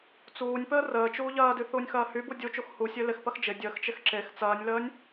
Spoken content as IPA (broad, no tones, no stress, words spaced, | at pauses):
t͡suːnʲpəː rəːt͡ʃuː ʎɐːdy θuːnʲxɐːhybu dʲut͡ʃux husʲø lɪxpɐx d͡ʒɪ dʲəːxt͡ʃɪx ǁex t͡sɐːnʲləːnʲ